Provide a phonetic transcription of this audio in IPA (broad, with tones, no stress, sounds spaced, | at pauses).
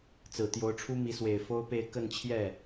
t͡s ɹ̩˨˩ t̪ j o˧˥ ʊ̯ ʈ͡ʂʰ u˥ m i˧˥ s w e˨˩ ɪ̯ f o˥ ʊ̯ p e˥˧ ɪ̯ k ə˥˧ n t͡ɕʰ j ɛ˥˩